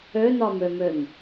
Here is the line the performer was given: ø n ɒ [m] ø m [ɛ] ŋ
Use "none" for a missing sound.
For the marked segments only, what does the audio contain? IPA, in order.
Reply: m, ø

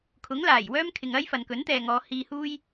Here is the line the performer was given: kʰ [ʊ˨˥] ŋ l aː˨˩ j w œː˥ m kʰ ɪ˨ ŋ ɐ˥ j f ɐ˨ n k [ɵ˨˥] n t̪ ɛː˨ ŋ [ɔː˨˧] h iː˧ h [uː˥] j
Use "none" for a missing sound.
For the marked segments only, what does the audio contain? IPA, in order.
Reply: ʊ˨˥, ɵ˨˥, ɔː˨˧, uː˥

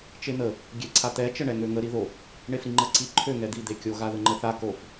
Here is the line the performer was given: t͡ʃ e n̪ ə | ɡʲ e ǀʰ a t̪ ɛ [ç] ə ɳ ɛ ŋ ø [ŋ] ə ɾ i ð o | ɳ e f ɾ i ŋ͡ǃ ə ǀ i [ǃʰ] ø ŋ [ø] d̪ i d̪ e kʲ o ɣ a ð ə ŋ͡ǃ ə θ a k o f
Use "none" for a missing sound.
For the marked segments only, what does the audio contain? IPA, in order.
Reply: t͡ʃ, ŋ, ǃʰ, ɛ

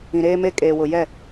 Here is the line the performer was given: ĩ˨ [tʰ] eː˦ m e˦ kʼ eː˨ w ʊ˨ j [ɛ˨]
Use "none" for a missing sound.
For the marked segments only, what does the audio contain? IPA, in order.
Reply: ɾ, ɛ˦˨

